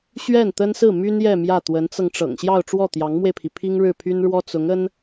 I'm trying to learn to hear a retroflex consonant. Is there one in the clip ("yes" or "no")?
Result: yes